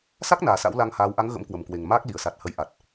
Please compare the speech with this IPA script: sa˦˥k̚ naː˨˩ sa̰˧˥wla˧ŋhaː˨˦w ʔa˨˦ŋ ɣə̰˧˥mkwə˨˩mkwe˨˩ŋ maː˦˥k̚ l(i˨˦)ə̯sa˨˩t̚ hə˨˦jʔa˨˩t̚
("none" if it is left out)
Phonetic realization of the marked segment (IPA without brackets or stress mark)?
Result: i˧˩